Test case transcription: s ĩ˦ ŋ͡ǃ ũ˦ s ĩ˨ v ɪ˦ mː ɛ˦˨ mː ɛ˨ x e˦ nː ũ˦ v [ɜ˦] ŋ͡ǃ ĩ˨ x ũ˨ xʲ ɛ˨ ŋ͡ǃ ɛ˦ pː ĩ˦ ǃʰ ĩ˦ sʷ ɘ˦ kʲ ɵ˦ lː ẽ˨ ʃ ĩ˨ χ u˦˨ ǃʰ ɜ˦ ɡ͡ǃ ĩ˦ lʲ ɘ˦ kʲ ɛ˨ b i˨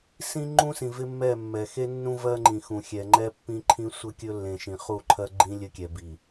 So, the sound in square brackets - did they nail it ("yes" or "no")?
yes